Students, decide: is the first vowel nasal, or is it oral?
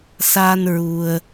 oral